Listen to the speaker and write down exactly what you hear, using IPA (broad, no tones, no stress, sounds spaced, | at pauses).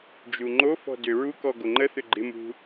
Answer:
d͡ʒ u ŋ͡ǃ o f ɔ̤ d ʏ ɹ u k ɔ ɡ o ŋ͡ǃ ə θ ʏ ɡ͡ǃ ɪ m ṳ